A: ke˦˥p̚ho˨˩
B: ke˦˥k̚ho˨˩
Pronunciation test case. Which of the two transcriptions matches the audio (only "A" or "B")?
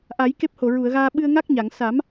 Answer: A